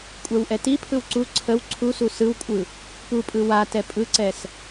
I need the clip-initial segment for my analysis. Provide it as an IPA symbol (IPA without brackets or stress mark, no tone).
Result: kʷʼ